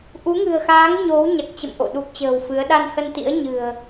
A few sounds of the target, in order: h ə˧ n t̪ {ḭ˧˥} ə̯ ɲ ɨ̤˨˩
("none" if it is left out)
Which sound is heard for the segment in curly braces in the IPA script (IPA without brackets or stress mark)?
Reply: ḭ˧˥